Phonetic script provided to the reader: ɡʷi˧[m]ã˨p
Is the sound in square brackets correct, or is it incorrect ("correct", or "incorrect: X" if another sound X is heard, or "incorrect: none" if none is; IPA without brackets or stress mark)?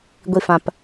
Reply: incorrect: f